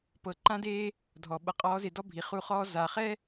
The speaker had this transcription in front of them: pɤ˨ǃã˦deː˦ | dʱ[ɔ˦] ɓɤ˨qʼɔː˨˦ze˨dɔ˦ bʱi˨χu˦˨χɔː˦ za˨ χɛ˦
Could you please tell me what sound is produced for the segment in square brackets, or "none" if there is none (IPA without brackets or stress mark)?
ɔ˨